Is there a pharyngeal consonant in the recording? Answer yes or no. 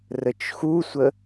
no